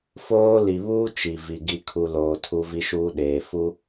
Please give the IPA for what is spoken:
f oː˦ l i˨ β uː˦ t͡ʃ i˨ v i˨ ɡ i˨ kʰ u˨ l oː˨ tʰ u˦ v i˦ ʃ uː˦ ɗ eː˨ f u˦

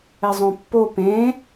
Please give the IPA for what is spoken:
ɛ zˤ õ pː o p ẽ

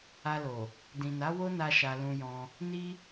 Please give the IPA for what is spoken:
a˧ l o˨ | d ĩ˨ n a˨˦ w o˦ n a˧ ʃ a˧ l ũ˧ j ɔ̃˧ | n i˦

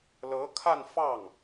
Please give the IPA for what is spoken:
l ɤ˧˥ kʰ a˥˧ n f ɑ˥˩ ŋ

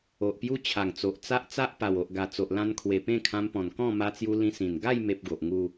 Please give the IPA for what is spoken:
o˨ ʔ p j u˦ t͡ɕʰ a˨˩ ŋ t͡s o˨ ʔ t͡s a˦ ʔ t͡s a˦ ʔ p a˨˩ w o˨ ʔ ɡ a˨˩ t͡s o˨ ʔ l ã˧ n kʰ w e˨˩ p ẽ˥˧ kʰ ã˧ m p ɔ̃˨˩ n k ɔ̃˥˧ m a˧ t͡s j u˧ l ĩ˧ s ĩ˨˩ n ɡ a˥˧ j m e˦ p̚ ɡ o˨ ʔ ŋ u˥˧

